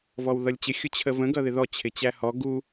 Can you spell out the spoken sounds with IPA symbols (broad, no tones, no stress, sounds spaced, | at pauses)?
v ɔ w ð ʌ lʲ t͡ɕ ɪ xʲ ʊ t͡ɕʰ ə v ə̃ ɡ ʌ ð ɪ ð ɔ t͡ɕʰ ɪ t͡ɕ æ h ɔ ɡ u